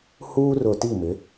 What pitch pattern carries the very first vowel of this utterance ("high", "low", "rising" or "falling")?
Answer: high